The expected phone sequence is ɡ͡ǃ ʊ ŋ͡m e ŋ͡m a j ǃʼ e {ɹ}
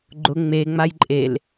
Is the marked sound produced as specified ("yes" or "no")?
no